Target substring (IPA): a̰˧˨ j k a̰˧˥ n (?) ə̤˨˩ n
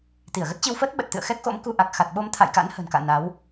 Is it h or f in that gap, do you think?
h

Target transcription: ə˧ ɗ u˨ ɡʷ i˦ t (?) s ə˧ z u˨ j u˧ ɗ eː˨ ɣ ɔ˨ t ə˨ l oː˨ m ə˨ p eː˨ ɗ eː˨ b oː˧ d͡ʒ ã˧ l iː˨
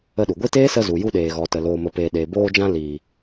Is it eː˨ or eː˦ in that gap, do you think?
eː˦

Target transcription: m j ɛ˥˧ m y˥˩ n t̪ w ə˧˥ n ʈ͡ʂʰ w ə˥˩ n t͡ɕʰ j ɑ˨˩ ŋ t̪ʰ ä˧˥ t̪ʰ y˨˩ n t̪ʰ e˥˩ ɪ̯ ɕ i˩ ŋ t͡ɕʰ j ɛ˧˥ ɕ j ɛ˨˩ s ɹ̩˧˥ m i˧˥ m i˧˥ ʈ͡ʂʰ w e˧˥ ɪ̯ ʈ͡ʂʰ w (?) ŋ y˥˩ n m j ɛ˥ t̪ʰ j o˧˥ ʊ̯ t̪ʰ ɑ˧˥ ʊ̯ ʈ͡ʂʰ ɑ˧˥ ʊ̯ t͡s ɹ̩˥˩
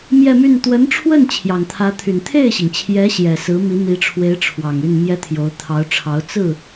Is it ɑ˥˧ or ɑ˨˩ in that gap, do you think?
ɑ˨˩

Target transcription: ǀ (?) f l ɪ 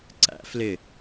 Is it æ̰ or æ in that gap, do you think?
æ̰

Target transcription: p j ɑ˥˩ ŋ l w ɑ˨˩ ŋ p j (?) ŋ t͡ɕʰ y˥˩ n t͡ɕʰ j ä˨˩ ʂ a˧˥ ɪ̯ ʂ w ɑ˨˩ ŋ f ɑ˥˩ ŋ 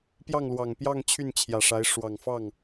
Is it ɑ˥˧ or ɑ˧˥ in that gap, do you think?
ɑ˥˧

